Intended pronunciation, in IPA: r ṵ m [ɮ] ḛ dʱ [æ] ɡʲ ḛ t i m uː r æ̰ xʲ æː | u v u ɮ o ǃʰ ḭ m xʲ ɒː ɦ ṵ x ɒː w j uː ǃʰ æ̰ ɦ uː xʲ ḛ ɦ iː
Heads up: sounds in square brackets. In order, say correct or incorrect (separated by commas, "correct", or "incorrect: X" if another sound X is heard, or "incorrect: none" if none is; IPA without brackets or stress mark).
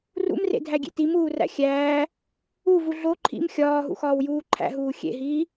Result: incorrect: r, correct